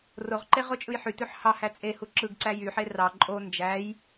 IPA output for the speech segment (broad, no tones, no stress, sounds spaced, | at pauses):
r o ʁ ǃ e ʁ o t͡ʃʼ ɯ j ħ y t ø ħ h ɑ h æ t͡sʼ e h u ǁ ɯ ɡ ǀ æ j y ħ e r ɑ ǃʼ o n d͡ʒ æ j